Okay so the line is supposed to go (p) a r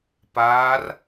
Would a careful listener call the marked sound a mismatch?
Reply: no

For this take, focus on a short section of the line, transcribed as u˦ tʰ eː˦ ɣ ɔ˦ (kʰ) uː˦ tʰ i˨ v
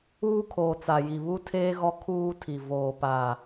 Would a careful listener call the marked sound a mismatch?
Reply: no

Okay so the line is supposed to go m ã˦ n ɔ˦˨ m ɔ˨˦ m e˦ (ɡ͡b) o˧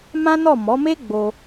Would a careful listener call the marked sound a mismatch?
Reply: no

